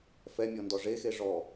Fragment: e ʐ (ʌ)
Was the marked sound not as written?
yes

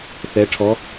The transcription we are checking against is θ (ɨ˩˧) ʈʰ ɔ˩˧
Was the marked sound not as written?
yes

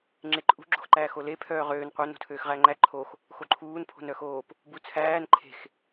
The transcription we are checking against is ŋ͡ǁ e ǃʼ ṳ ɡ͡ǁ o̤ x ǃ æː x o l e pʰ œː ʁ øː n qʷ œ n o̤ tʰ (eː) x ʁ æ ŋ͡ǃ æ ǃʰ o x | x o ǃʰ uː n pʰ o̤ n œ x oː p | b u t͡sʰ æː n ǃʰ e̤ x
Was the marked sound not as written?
yes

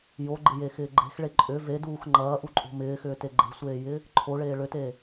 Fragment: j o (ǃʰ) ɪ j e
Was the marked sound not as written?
yes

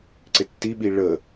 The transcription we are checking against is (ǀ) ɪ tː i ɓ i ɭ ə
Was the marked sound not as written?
no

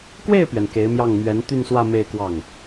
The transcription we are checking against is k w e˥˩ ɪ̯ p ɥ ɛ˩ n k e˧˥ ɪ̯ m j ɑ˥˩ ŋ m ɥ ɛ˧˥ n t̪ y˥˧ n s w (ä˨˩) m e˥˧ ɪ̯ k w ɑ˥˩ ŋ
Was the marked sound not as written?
yes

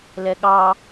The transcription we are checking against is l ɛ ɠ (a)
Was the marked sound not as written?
yes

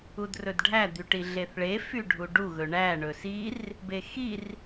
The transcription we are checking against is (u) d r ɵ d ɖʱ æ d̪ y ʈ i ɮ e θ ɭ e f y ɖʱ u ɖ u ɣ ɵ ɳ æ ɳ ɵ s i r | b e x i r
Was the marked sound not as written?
no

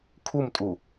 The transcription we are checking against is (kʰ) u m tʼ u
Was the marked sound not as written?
no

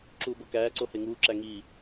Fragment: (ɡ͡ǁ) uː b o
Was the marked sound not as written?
yes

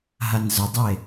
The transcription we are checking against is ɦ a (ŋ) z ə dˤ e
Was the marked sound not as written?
yes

